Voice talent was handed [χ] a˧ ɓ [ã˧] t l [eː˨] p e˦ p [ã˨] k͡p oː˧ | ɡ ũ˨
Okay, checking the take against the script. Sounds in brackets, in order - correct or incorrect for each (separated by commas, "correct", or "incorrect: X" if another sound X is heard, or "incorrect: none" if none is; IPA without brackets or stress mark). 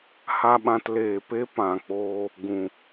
incorrect: h, correct, correct, correct